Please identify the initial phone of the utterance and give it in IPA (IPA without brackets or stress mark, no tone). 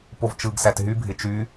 p